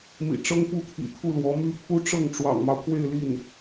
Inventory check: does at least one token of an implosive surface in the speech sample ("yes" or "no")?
no